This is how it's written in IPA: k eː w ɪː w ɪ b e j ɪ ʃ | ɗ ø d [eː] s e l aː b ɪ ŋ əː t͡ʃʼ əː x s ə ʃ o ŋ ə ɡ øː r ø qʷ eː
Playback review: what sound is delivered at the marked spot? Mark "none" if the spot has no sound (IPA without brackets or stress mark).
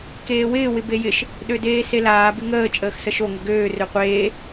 eː